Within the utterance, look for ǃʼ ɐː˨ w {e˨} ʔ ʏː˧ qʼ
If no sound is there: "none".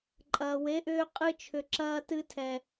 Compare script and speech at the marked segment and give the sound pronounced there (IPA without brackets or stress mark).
e˨˦